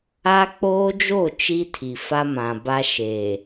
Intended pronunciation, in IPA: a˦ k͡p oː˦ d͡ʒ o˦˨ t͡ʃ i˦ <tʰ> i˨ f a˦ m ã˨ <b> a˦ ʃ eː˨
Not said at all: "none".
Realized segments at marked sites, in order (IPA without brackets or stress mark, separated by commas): tʰ, b